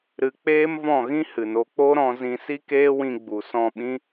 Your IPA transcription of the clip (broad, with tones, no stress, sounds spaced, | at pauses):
ɾ ɨ˧ k͡p eː˦ m v ɔ̃˦˨ ɣ ĩ˦ h ɨ˨ n o˧ k͡p o˦ ɾ ɔ̃˧ z ĩ˧ s i˦ k eː˦ w ĩ˧ ɡ͡b u˨ s ɔ̃˦˨ ɓ ĩ˦